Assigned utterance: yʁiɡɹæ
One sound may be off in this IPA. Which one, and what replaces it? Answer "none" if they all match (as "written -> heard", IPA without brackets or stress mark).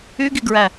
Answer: ʁ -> ɡ